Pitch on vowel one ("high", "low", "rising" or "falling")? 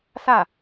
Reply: falling